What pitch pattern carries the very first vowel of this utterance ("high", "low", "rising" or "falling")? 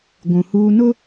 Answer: low